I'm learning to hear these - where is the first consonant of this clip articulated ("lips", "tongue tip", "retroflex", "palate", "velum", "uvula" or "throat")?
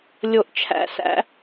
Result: tongue tip